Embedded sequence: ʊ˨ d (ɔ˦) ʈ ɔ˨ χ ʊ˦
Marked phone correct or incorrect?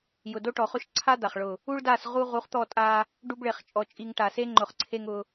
incorrect